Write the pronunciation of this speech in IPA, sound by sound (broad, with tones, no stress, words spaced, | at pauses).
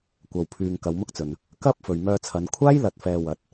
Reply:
kʷɐ˨wpʰyː˨ŋ kɐ˨˧wmʊ˥k̚t͡sɵ˨n | kɐ˥p̚ fɵ˨ɥmœː˧t͡sʰɐ˨˧n kʷʰaː˥jlɐ˨t̚fɛː˨ wɐ˨˥t̚